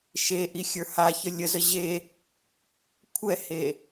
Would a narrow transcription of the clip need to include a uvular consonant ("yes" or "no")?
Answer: no